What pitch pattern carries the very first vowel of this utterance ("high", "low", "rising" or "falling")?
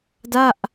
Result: falling